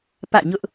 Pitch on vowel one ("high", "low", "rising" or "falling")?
falling